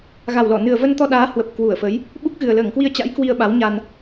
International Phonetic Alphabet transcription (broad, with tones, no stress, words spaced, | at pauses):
ɣa˨˩wlɔ˧˩ nɨ˨˩ə̯və˧nt̪ɔ˧ɗaː˨˦ hwə˨˩p̚kwu˧˩ə̯fə˨˦j | ɓu˦˥k̚ɣɨ˨˩ə̯ ləː˧˩ŋkwi˧ə̯t͡ɕa̰˧˥j kwi˧ə̯ɓa˨˦w ɲa˧n